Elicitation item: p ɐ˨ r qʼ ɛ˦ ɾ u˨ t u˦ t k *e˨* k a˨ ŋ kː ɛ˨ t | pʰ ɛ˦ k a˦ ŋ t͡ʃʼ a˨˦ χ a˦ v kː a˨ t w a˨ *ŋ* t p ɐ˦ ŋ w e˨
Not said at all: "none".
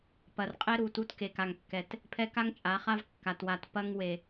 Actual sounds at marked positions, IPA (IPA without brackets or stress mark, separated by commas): e˨, none